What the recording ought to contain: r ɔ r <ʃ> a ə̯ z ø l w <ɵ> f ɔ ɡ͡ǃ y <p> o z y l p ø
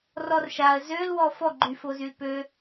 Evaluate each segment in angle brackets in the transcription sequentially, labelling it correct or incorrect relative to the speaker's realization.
correct, incorrect: ɔ, incorrect: f

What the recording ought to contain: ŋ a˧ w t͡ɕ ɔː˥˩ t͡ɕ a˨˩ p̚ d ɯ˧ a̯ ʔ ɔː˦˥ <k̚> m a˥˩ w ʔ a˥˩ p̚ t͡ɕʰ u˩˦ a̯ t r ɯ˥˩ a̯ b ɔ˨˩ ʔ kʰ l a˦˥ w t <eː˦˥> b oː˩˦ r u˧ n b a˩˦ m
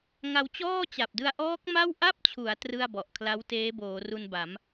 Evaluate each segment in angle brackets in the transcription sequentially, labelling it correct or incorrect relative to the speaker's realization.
correct, correct

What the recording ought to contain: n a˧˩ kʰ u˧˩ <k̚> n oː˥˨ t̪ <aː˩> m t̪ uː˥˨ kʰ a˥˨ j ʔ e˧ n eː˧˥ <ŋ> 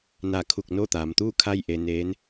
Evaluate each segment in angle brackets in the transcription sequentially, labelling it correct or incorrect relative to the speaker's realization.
correct, incorrect: aː˩˧, incorrect: n

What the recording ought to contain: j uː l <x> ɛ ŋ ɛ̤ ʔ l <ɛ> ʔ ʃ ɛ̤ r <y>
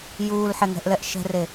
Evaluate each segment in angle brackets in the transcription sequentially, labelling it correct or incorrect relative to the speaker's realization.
incorrect: ħ, correct, incorrect: e

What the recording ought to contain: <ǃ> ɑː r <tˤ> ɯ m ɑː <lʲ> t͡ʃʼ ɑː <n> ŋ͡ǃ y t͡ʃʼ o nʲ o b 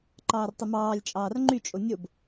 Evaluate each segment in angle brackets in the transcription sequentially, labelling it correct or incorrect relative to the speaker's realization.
correct, correct, correct, incorrect: r

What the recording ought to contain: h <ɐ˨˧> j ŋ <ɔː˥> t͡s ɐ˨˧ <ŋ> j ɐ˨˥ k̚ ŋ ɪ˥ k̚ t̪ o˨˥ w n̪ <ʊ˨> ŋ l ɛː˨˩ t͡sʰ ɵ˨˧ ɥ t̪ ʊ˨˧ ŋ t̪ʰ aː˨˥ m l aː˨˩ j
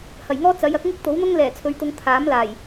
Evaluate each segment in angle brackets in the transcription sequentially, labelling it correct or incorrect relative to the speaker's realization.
incorrect: ɐ˨˩, correct, incorrect: none, incorrect: ʊ˥

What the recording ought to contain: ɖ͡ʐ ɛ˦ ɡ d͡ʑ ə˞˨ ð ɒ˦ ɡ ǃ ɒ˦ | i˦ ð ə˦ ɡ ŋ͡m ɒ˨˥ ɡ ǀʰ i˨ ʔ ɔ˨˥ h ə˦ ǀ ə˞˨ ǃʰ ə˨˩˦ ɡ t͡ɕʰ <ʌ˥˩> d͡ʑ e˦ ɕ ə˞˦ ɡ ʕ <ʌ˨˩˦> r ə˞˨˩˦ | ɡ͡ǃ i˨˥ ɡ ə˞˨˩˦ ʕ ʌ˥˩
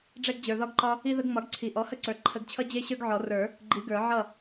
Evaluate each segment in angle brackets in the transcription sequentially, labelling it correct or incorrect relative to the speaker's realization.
incorrect: ʌ˦, incorrect: ɔ˨˩˦

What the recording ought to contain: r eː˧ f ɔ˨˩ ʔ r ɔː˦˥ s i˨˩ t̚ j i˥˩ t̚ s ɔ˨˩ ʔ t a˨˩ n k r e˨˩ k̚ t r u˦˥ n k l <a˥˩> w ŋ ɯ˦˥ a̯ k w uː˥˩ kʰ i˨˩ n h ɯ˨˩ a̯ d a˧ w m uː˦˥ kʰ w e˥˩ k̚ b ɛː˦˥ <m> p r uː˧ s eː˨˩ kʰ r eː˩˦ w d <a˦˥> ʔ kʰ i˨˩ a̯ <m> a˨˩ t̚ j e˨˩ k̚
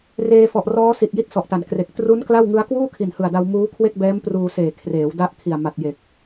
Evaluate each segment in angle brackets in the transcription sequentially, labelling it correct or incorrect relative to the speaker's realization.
correct, correct, correct, correct

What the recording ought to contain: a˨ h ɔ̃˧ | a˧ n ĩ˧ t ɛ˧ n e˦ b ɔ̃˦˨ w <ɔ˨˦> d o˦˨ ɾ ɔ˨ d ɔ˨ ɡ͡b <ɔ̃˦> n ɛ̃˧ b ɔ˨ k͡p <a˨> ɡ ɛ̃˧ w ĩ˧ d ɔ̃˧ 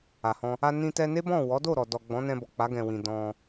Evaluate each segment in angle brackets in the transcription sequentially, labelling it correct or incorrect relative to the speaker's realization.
correct, incorrect: ɔ̃˨˦, incorrect: a˨˦

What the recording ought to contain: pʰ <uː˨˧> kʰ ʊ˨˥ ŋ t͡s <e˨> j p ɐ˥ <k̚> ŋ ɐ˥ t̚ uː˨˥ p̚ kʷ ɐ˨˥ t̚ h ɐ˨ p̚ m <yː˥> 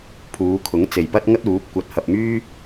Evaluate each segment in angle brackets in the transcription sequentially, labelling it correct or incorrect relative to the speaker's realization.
correct, correct, incorrect: t̚, correct

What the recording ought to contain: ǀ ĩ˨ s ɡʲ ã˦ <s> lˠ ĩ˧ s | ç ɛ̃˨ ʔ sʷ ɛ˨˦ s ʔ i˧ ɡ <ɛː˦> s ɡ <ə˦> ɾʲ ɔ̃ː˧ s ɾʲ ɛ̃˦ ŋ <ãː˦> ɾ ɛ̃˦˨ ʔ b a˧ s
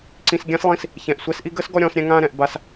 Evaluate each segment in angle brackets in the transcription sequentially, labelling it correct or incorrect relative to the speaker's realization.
correct, incorrect: əː˦, incorrect: ɔ˦, correct

